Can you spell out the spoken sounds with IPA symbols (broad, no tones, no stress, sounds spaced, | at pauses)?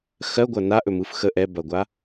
x ɜ ɡʷ ɐ n a ʔ ɵ m ɯ f x ə ʔ ɛ b ɐ ɡʷ a